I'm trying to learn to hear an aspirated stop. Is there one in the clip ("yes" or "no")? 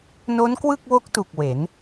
no